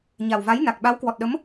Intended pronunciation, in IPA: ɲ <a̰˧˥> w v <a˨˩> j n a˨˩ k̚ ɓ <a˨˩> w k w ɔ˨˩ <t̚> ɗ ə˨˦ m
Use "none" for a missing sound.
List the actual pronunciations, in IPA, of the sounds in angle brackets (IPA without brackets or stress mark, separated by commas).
a˨˩, a˨˦, a˨˦, t̚